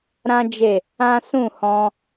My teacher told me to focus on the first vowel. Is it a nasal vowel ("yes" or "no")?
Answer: yes